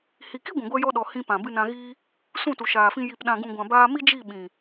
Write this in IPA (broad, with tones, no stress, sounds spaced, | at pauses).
h i˨ k i˦ ɡʷ ĩ˨ ɡʷ ɛ˧ j ɔ˧ ɗ ɔ˨ h ĩ˧ p ã˨ b ɨ˧ n ã˧ ɣ iː˦ | s ũ˦˨ t u˨ ʃ aː˨ f ĩ˧ j i˨ p ɗ ã˨ ɡ ũ˨ ɡʷ ã˨ b aː˧ m i˦ d͡ʒ i˦˨ ɓ ĩ˨